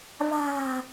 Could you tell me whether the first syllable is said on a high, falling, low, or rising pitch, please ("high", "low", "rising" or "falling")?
low